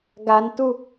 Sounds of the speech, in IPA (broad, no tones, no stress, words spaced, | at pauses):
ɡantu